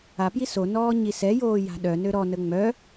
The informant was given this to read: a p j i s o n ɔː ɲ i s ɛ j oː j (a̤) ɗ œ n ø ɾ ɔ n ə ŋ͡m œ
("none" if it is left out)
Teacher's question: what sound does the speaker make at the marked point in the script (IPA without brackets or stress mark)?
a̤